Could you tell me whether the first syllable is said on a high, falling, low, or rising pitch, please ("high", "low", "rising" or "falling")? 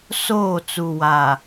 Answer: falling